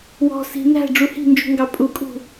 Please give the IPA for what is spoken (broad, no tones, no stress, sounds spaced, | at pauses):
w ɔ̤ s i̤ n æ̤ ɖ͡ʐ u h i̤ n d͡ʒ ṳ ŋ ɡ ɑ pʼ u kʼ ṳ